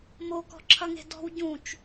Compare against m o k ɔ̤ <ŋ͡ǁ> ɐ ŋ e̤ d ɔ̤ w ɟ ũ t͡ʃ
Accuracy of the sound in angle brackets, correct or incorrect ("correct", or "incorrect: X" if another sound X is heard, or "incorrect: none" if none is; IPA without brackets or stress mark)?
incorrect: ǁʰ